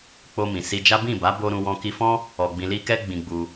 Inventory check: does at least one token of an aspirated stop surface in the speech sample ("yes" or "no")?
no